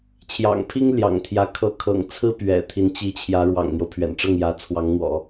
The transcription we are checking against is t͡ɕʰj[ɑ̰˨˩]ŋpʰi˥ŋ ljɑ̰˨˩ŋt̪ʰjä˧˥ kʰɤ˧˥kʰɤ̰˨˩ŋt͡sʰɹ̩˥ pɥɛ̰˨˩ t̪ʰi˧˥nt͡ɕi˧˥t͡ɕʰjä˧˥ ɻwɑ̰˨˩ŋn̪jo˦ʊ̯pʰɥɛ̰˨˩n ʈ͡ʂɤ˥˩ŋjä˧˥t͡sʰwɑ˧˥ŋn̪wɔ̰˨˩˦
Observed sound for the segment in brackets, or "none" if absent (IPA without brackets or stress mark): ɑ̰˨˩